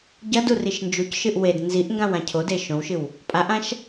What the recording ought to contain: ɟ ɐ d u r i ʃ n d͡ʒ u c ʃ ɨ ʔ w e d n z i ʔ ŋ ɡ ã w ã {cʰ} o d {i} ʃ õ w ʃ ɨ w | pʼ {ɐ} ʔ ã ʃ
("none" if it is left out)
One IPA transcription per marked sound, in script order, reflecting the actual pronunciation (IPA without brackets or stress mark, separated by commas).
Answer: cʰ, e, a